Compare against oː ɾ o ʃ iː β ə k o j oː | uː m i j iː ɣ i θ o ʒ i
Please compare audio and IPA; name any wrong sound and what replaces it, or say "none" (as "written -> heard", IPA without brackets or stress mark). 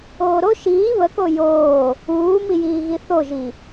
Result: none